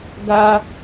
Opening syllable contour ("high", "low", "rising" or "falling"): high